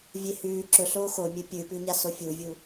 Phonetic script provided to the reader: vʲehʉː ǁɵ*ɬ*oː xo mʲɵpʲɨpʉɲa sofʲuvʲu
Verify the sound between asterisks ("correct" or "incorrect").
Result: correct